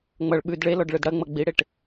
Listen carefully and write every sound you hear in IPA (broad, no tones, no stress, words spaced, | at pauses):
ŋ͡mʌɭ ɓʉd ɭelɔɖ ɭɯdɽɐŋ͡mʌ ɡ͡biɽeʈ